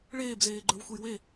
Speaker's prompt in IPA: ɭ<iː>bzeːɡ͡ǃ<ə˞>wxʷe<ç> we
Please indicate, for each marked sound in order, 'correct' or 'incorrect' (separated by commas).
incorrect, correct, incorrect